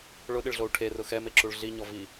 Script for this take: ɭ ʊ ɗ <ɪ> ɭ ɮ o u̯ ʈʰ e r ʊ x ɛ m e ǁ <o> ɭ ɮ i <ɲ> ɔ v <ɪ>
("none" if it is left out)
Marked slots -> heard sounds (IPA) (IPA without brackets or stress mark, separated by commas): ɪ, u, ɲ, i